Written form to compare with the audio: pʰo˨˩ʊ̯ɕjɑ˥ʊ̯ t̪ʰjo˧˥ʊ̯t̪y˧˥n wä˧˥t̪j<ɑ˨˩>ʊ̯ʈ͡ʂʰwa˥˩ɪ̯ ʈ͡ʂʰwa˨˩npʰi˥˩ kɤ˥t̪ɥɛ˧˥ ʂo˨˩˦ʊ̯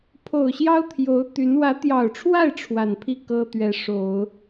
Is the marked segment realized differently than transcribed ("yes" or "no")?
no